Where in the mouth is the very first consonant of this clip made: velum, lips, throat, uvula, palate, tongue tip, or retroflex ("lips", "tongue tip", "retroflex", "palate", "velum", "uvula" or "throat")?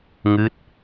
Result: velum